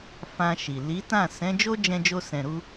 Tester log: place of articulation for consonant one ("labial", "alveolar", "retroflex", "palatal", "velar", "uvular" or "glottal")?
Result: labial